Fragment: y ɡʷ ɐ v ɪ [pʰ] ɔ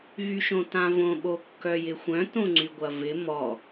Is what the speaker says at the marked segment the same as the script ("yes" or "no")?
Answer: no